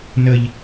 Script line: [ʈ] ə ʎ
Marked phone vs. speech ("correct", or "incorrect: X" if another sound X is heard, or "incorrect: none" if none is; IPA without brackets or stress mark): incorrect: n